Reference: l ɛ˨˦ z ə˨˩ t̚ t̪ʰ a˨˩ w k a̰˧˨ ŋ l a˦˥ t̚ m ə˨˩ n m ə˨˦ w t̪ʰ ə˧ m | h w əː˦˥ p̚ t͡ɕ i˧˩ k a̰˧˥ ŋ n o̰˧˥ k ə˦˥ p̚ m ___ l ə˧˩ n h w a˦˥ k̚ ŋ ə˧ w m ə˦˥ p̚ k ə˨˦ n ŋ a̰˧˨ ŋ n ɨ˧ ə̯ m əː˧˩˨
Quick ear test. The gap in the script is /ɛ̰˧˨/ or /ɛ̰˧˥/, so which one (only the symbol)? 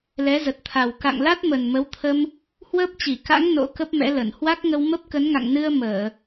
ɛ̰˧˥